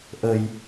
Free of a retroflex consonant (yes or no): yes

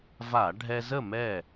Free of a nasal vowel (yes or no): yes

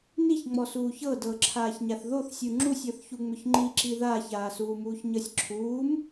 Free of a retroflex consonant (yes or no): yes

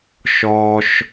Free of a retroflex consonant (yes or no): yes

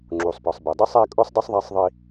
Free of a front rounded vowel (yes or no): yes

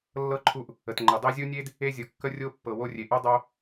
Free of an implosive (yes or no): yes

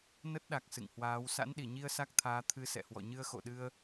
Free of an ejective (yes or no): yes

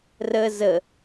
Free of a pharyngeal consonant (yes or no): yes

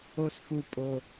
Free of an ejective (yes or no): no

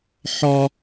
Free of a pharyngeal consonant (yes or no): no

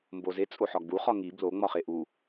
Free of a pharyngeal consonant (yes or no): no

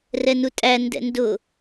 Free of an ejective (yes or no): no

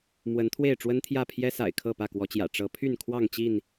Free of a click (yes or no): yes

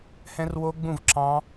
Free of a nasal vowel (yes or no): no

